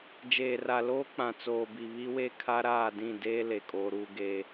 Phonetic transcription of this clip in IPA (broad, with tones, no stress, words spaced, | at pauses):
d͡ʒeː˨ra˨loː˦ k͡pã˨t͡soː˨ bi˨βi˦we˦ kʰa˦ɾaː˦˨dĩ˦˨ deː˦ le˨kʼoː˦ɾuː˦ ɡeː˦